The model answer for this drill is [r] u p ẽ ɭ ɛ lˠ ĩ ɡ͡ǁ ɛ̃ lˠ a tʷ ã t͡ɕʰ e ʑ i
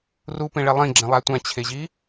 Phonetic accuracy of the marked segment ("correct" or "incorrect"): correct